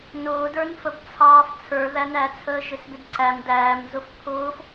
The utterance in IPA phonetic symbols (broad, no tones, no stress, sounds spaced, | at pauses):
n ʊː d ə˞ n f ə b t͡sʰ ɑː f t͡sʰ ə˞ ð æ n æ t͡sʰ əː ʒ ɪ s b ɪ d ǀ æ m d æː m z ʊ f pʰ ʊː f